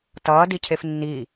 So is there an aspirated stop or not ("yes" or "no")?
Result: yes